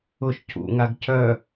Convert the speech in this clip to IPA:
ʊ ʃ c ṵ ŋ a ɡ c œ

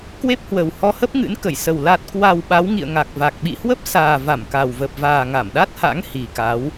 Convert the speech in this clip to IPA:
k w e˦˥ p̚ h w ə˨˩ w h ɔ˧ h ə˦˥ p̚ ŋ ɨ̰˧˥ n k ə˧˩ j s ə˨˩ w l a˨˩ t̚ k w a˨˩ w ɓ a˨˦ w ŋ ḭ˧˨ ə̯ ŋ a˨˩ k̚ v a˨˩ k̚ ɓ ḭ˧˨ h w ə˦˥ p̚ s aː˨˩ v a˧˩ m k a˨˩ w v ə˨˩ p̚ v aː˨˩ ŋ a˧˩ m ɗ a˦˥ t̚ h a̰˧˥ ŋ h i˨˩ k a˨˦ w

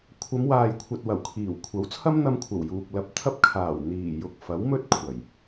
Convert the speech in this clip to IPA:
kʷʰ ɐ˨˧ m w aː˨ j kʷʰ ɐ˨ t̚ w ɐ˨˩ w kʰ iː˨˩ w kʷʰ ɐ˨˥ w t͡sʰ ɐ˥ m n̪ ɐ˧ m kʷʰ ɐ˨˩ w j uː˨ k̚ l ɐ˨˥ p̚ t̪ʰ ɐ˧ p̚ kʰ aː˨˩ w n̪ iː˨˩ j ʊ˨ k̚ f ɐ˨˥ w m ɵ˥ t̚ kʷʰ ɐ˨˩ j

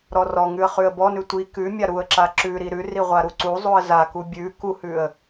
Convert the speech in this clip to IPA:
ɾ ɔ r ɔ ŋ ʉ ə̯ χ ʉ ə̯ b ɔ n ʉ tʷ i k ʉ mʲ a ɾ u ə̯ ǁ a ǁ ʉ ɾ i ɾ ʉ r i ʁʷ a ɾ u ǀ u zˤ u ə̯ z a k u bʲ ʉ k u h ʉ ə̯

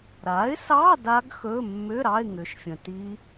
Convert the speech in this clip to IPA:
ɾ a˩˥ ɪ̯ s ɑ˧˥˧ d a˦˥ ɡ x ɵ˧˥˧ mː ʏ˧˥˧ ɾ ɑ˧˥˧ ɪ̯ ŋ ʏ˩˥ ʃ fʲ ə̃˨ t i˦˥

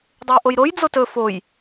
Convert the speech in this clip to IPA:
dˤ ʉ j ʔ o j ɾ o j d͡z o t ɵ f o j

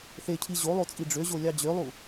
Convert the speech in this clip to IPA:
θ e cʰ i ʑ o lˠ o t͡sʼ i ɖ͡ʐ ø ʑ o lʲ ɑ d͡ʑ ø lˠ u

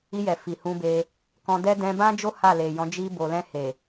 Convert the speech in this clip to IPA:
i˧ j ɛ˨ f i˨ h ũ˧ b e˧ | k ɔ̃˧ d ɛ˦ d ɛ̃˧ b ã˦ d͡ʒ o˦ h a˦˨ l e˨ j ɔ̃˨˦ d͡ʒ i˧ b o˨ l ɛ̃˧ h e˨

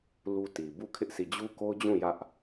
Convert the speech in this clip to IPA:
l u˦ t i˨ b u˦˨ kʰ ɪ˦ ʔ sʰ i˦˨ d͡ʑ u˦ k o˦ ʊ̯ d͡ʑ ũ˦˨ j ä˦ ʔ

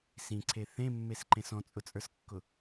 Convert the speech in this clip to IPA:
s ĩ ǀʰ e θ ẽ mː e s ǃ ẽ s ɔ̃ t͡sʼ ʊ t͡sʼ ə˞ s kː ʊ

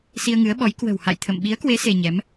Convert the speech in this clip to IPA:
s i˧ ə̯ ŋ ɨ˨˦ ə̯ ɓ ɔ˨˦ j k w ə̤˨˩ w h a̰˧˨ j t̪ʰ ə̰˧˨ m ɓ i˨˦ ə̯ k w e˨˦ s e˧ ɲ ɛ˨˦ m

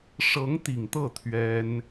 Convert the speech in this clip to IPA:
ʂ ɤ˧˥ ŋ t̪ i˨˩ ŋ t̪ ɤ˥˩ t̪ʰ ɥ ɛ˥ n

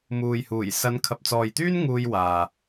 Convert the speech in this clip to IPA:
m uː˨ j h uː˨˩ j s ɐ˨˧ n kʰ ɐ˨ p̚ t͡s ɔː˨ j t̪ yː˥ n ŋ uː˧ j w aː˨

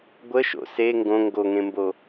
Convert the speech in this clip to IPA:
ɡʷ ə ʃ o̰ s e ŋ ɡ õ ŋ ɡ o ŋ ẽ m b o

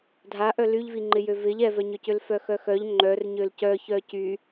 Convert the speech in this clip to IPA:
dʱ a ʔ œ l y ʎ v i ŋ͡ǃ ɪ j ø v ɪ ʎ ɛ v œ ɲ ø c ʏ l f œ x œ x œ ʎ ŋ͡ǃ œ r ɲ ø l c œ ç œ c y

